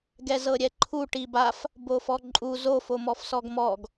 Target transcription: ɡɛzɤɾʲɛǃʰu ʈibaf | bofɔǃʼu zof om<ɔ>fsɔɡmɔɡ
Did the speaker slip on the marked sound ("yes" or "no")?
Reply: no